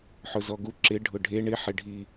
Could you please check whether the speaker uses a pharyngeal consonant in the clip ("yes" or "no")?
yes